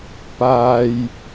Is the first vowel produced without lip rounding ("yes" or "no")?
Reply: yes